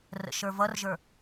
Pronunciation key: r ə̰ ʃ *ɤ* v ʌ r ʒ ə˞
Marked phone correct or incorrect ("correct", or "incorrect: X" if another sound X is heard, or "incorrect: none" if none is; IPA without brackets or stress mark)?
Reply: incorrect: ə˞